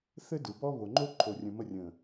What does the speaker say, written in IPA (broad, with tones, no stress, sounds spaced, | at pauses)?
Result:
θ ɘ˦ d ɯ˨ b ɔ˦ β o˨ ŋ͡ǃ o˦ ǃʰ o˨ rʲ ə̃˨ m ə˦˨ rʲ ə̃˨